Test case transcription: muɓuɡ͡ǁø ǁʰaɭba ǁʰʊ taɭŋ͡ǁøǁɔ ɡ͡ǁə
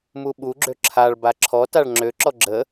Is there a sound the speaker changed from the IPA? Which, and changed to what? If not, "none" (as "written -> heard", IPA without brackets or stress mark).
ʊ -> ɔ